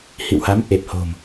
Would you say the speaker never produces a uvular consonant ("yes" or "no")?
yes